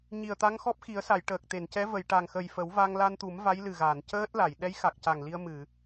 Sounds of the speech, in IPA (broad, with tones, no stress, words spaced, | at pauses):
ɲi˨˩ə̯t̪a˧˥ŋxɔ˦˥p̚ xi˨˩˦ə̯sa˨˩˨j ʈəː˨˩k̚t̪e˨˩˨ncɛ˧˥ və˨˩˨jʈa˨˩ŋ xə˨˩jfə˨˩˦wva˧ŋ la˧nt̪u˨˩˦m va˧˥jlɨ˨˩ɣaː˨˩˨n cəː˦˥t̚la˨˩˨j ɗɛ˧˥jxa˨˩k̚ca˨˩ŋ li˧ə̯ mɨ˨˩˨